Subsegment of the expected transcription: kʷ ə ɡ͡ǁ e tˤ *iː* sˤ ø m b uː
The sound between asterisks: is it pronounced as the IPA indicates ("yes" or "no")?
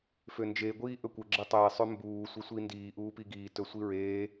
no